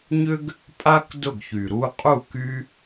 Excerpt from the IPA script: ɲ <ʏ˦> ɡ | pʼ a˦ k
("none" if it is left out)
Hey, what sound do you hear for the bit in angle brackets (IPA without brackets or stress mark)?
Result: ʏ˦